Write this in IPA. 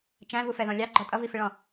t͡ʃæ̃vufɛðɔ̃ lʲɑɡ͡ǃɔ tʼʌvifɪɭɔ̃

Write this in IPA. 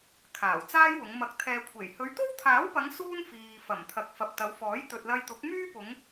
kʰaː˨˩wt͡saː˥jwʊ˨˧ŋ mɐ˨k̚t̪ʰɛː˨kʷʰe˨˩j hɵ˨˧ɥt̪o˥wt̪ʰaː˨˥wpɐ˨˧ŋ suː˥nfiː˨ fɐ˨˩mt̪ʰɐ˨k̚ fɐ˨p̚t̪ɐ˨˧wfɔː˨˥j t̪ɵ˨t̚lɐ˧jt̪ʊ˨˥k̚ myː˥pʊ˨˧ŋ

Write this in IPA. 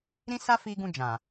ɾĩ˦sa˦ fi˧ɡũ˧d͡ʒã˨

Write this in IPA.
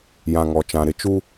jã˨ŋɔ˨t͡ʃã˨ ɾɪ˨t͡ʃu˦

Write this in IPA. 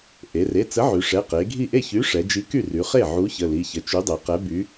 ʔe˩˧re˩˧˩t͡sə˨˥ʕy˩˧ ʂɛ˩˧˩qe˩˧ɡʱi˥˩ ʔe˥˩çy˨˥ ʂɛ˩˧d͡ʒi˨˥ky˥˩ry˩˧ χe˥˩ʕu˨˥ çə˩˧˩li˩˧˩çə˩˧˩ t͡ʃy˨˥dˤe˩˧qɛ˨˥by˨˥

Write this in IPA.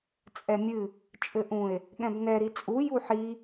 t͡sʼɛmʲɨ | t͡ʃʼɘʔũe̯ | ɠɛ̃bnɛ ɾit͡sʼu juħi

